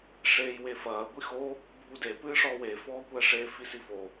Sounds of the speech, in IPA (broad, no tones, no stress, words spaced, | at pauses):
ʂeːjwefɐː ɡʷixo | bʱude pɨːʂɔwe fɔːkʷɛʂe fisifo